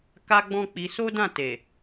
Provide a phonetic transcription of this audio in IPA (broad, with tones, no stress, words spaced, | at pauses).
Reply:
ka˦ɡ͡bɔ̃˦k͡pi˧ so˦ dã˦˨te˨